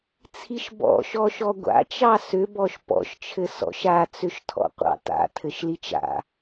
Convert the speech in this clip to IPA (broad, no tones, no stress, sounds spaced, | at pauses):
t͡sʰ i ʃ b ɔ̰ ʃ ɔ ʃ ɔ ɡʷ a̰ t͡ʃ ɑ s ʏ b ɔ ʃ p ɔ̰ ʃ t͡ʃʰ ɘ s ɔ̰ ʃ a t͡s ʏ ʃ tʰ ɔ̰ qʷ ɑ̰ t a̰ tʰ ɘ ʃ l i t͡ʃ a̰